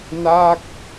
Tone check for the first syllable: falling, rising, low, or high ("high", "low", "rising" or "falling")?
falling